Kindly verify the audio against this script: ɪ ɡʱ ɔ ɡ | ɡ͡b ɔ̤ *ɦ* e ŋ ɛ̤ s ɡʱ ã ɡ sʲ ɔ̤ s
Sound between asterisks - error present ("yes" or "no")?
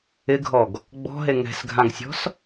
no